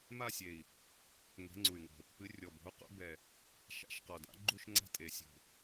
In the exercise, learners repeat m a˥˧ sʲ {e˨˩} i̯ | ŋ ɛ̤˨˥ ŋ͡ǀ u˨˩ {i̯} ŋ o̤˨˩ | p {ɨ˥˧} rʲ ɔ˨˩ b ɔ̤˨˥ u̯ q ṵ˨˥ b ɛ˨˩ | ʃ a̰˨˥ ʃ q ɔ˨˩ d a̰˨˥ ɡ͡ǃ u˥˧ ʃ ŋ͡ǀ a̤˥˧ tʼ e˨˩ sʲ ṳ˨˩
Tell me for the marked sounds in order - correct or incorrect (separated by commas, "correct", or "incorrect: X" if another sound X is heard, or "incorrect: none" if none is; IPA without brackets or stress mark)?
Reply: correct, incorrect: y̯, incorrect: ɨ˨˥